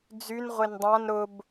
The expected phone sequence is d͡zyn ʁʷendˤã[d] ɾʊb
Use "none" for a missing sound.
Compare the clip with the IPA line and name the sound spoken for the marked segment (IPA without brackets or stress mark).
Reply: n